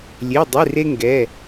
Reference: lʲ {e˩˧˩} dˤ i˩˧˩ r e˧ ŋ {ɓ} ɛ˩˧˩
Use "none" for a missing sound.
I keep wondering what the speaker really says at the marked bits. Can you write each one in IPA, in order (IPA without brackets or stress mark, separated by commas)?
e˩˧˩, ɡ